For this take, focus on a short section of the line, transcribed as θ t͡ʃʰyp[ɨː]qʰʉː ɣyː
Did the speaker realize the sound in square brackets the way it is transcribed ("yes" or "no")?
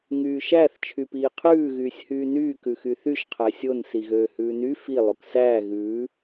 no